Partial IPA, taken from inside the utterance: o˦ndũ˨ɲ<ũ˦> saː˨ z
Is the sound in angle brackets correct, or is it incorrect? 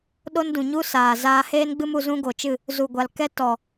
incorrect: u˦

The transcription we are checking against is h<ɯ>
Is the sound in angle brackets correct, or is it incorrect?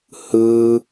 correct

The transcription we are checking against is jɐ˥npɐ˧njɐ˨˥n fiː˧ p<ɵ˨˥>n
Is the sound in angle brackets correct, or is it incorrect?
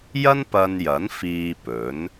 correct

